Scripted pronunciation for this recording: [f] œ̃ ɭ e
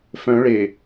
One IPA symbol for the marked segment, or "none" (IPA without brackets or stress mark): f